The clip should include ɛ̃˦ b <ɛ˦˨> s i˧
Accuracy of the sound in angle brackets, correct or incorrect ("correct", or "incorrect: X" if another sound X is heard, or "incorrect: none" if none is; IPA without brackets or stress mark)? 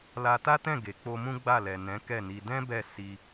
correct